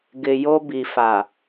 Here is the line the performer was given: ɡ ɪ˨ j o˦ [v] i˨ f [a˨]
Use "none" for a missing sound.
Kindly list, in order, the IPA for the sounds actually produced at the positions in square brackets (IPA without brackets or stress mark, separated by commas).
b, a˨